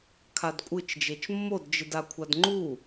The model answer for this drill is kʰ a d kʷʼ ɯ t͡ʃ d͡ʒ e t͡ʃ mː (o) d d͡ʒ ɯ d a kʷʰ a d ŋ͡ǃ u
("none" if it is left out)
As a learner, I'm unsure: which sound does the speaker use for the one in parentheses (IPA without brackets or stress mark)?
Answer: o